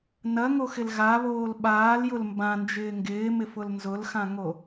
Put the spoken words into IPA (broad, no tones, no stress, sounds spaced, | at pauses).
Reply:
n ɐ ŋ o x ɪ l ɣ a β oː l ɓ aː l j ʊ l m b ã n d͡ʒ ɪː ŋ ɡ ɪː m ɪ f ʊ l n z ʊ l x ã ŋ o